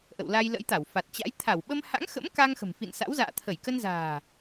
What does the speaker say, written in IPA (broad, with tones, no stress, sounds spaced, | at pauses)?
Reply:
ʔ ə̰˧˨ w l a˧ j l ə̰˧˥ j t̪ a˧˩ w f a˨˩ t̚ t͡ɕ a̰˧˥ j t̪ʰ a˧˩ w ɓ ə˧ m h a̰˧˥ ŋ x ə̰˧˥ m k a˧ ŋ x ə̤˨˩ m f ḭ˧˨ n s a̰˧˥ w z a̰ː˧˨ t̪ʰ ə˧˩ j k ə˧ n z a̤ː˨˩